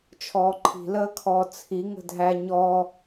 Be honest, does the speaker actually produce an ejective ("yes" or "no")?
no